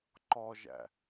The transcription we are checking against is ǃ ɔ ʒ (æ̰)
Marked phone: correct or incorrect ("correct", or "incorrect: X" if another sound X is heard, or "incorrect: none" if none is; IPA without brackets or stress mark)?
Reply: correct